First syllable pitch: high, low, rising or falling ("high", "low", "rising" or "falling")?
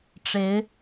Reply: rising